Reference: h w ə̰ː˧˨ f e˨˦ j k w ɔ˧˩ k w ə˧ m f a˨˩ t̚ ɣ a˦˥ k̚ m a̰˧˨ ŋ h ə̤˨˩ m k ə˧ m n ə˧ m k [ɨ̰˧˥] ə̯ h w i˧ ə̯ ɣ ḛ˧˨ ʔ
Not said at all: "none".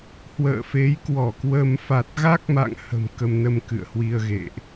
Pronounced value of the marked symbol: ɨ̰˧˨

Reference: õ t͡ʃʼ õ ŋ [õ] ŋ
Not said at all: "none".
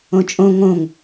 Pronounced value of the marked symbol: õ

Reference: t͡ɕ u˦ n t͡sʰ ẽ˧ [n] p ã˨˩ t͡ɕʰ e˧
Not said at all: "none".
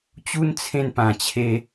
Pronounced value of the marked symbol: n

